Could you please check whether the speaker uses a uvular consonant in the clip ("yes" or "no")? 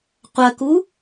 yes